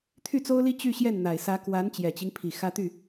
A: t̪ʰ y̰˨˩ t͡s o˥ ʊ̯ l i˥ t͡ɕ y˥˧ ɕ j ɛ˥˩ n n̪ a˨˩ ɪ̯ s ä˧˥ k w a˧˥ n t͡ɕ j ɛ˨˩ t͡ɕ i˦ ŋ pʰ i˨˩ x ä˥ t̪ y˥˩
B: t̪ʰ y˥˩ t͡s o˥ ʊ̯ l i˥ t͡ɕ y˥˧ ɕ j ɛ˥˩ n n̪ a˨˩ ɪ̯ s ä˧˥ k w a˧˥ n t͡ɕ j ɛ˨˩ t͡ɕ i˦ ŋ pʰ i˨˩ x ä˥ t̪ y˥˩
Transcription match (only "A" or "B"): B